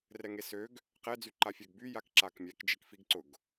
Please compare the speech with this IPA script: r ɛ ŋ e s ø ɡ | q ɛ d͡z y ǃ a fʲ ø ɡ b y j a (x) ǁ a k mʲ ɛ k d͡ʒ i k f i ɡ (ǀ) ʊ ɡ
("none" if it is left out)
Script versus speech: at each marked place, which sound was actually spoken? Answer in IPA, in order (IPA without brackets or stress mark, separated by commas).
k, ǀ